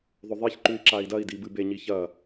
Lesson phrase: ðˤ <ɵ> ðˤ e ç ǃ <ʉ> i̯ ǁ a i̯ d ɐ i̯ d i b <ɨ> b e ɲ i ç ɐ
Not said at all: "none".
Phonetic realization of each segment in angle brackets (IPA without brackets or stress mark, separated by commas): ɵ, ʉ, ɨ